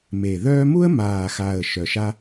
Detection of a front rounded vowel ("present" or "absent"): present